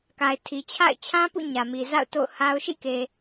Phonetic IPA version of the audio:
k a˨ ɪ̯ tʰ i˨ t͡ɕʰ a̰˦˨ ɪ̯ t͡ɕʰ ã˦ p ṵ˦˨ ɲ ä˨ m i˨ z a̰˦˨ ʊ̯ t o̰˦˨ ʊ̯ h a˦ ʊ̯ ʃ ḭ˦˨ k e˨

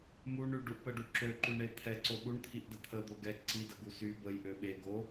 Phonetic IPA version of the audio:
m u ɳ y ɖ u ʔ p ə ɖ u ǁ ø ǃ y ɳ e t̪ʰ ɛ ǀ o ɓ u ɳ t̪ʰ i ʔ d ə t̪ʰ ə d̪ o ɡ ɛ ǀ i d ə ɡ u s y b ə j ʔ ø ɓ e ɡ o

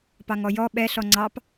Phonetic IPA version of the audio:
p ɑ ŋ ɔ j ɔ ɓ ɛ ɬ ɔ ŋ͡ǀ ɑ p

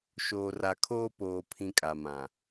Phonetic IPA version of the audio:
ʃ oː˨ r a˨ kʰ oː˦ p oː˨ pʰ ĩ˦ kʼ a˨ m ã˨

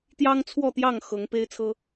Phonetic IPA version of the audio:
t̪ j ɑ˦ ŋ t͡sʰ w ɔ˥˨ t̪ j ɑ˥˨ ŋ x ɤ˨˦ ŋ p e˦ ɪ̯ t͡sʰ ɤ˦

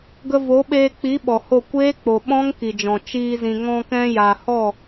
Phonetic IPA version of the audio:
ɡ ə˧ v o˨˦ ɓ eː˧ k͡p i˨˦ ɓ ɔ˨ h o˦˨ kʷ eː˦ k͡p o˨ ɓ ɔ̃˦ ŋ k i˨ d͡ʒ ɔ̃˨ t͡ʃ iː˧ z ĩ˨ ŋ ɔ̃˧ k ɛ̃˧ j a˨ h ɔ˦˨

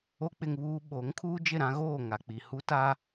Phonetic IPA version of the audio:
o˦ k͡p ɪ˦ ŋ β uː˦ ɓ o˨˦ ŋ kʰ uː˦ d͡ʒ ɪ˦˨ ɾ ã˦ ɣ oː˦˨ ŋ a˨ k͡p i˨ h u˦ t a˦

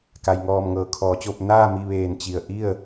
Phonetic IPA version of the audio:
k a˩ j ŋ ɔː˧˩ m ŋ ɤː˩˧ kʰ ɔː˩˧ t͡ɕ o˥˨ p̚ n aː˥˨ m i˧ ʋ eː˧˩ n t͡ɕ i˧˩ ə̯ ʔ i˥˨ ə̯

